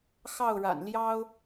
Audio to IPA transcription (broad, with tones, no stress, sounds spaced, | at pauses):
x ɑ˥˩ ʊ̯ ɻ a̰˨˩ n l j ɑ˥ ʊ̯